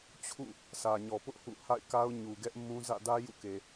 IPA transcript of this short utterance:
t͡ɕʰṵ˦˨ | sä˨ɲɔ˨pʊ˦ʔ hṵ˦˨ ha̰˦˨ɪ̯ka˦ʊ̯ɲu˨ɡɛ˦ʔ mũ˦ zä̰˦˨dä˦ jṵ˦˨ke˨

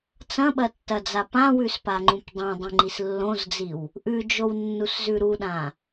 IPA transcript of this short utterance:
t͡sɐ̃ɓɐtːɐd͡za pãwʉspaŋ͡ǃũp dˤõdˤĩŋ͡ǃis lːõzd͡ziw | ʔʉd͡ʒownːuszʉ ɾuɗã

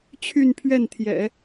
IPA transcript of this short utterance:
t͡ɕʰy˥˧npʰɥɛ˥˩nt̪ʰjɛ̰˨˩˦

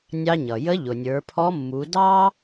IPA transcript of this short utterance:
nʲɑ˧ɲʌ˩jə˧˥ ʎʊ˩nʲə˞˩˧pʰɔ˧˥mːu˩˧ dɑ˥

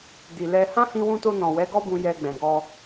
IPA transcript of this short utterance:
di˨lɛ˧ hã˦hĩ˧wũ˧to˧ nɔ̃˨wɛ˨˦ɡɔ˦bũ˧ jɛ˧ɡ͡bɛ̃˨ɡɔ˧

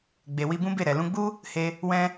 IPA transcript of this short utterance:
ɡ͡be˨wi˧bũ˦ be˦˨ɾɛ˨ lũ˧ɡ͡bu˦ | he˧ | wɛ̃˧

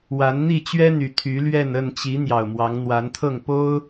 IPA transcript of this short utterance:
wa˨˦nn̪i˥˨t͡ɕɥɛ˦n̪y˨˩ t̪ʰy˨˦lɥɛ˥˨n ə˥˨nt͡ɕi˨˦ n̪jɑ˨˩ʊ̯mwɑ˨˦ŋn̪wa˨˦nt̪ʰɤ˥˨ŋ po˦ʊ̯

